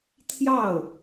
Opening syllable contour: falling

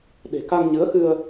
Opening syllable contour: low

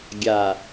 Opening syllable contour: low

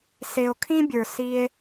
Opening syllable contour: low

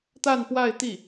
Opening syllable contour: falling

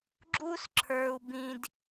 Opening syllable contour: high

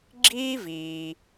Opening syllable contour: high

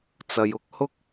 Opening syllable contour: low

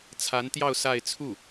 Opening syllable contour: rising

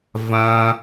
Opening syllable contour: high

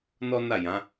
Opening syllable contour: high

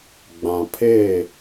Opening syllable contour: low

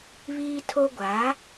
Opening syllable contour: high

